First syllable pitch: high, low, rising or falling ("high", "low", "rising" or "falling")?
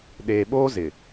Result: low